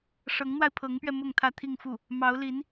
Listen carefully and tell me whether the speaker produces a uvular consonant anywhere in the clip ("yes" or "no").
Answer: no